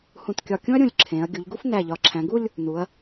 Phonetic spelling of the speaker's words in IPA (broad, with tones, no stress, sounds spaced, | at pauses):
h ũ˧˩ t kʲ ɒ˧˩ kʲ ũ˥ ɐ̯ ɾʲ ũ˧˩ lʲ ǁʰ ẽ˩˧ ɐ̯ ɡʲ u˩˧ ʎ ɡ u˥ f n æ˧˩ ʎ ɒ˩˧ ǁʰ æ̃˩˧ ɡ u˥˧ lʲ | n u˩˧ ɐ̯